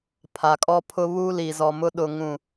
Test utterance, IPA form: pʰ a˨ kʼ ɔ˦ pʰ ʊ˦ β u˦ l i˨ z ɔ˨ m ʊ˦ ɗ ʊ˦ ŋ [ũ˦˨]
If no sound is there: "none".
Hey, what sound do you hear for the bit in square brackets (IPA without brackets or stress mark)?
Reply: ũ˦˨